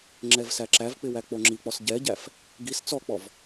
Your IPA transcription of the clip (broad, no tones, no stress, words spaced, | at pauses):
ŋ͡ǁɛvsæǁævk͡pɪ wæk͡poŋ͡ǁik͡pɔs ɟɛɟæf | ɡis t͡sɔk͡pɔv